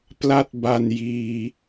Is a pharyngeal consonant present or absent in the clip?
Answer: absent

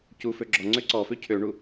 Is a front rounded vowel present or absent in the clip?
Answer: present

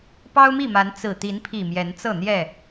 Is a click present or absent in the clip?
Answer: absent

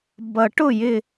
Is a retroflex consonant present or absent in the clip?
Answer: present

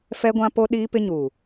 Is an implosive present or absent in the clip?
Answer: present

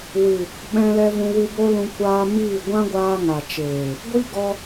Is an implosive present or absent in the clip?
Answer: present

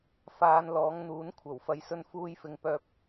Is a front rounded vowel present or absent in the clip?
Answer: present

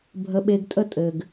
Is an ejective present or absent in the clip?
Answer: present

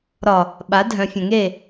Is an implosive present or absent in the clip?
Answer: present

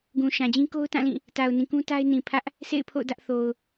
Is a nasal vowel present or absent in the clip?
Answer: present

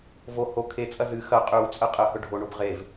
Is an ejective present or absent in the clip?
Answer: present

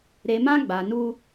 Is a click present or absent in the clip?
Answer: absent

